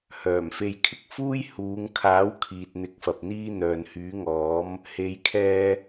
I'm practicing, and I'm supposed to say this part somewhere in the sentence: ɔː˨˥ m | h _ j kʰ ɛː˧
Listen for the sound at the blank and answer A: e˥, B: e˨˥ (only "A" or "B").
B